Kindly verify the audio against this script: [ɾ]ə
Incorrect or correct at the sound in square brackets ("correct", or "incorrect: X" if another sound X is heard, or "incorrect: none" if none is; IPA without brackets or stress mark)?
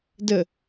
incorrect: d